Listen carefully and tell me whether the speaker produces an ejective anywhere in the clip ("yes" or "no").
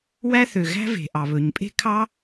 yes